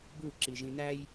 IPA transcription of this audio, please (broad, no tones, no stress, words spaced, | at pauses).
bu ǁiʒĩnæj